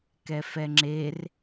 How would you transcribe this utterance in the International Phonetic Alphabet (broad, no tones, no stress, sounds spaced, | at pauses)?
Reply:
k ɛ f ɛ ŋ͡ǁ e r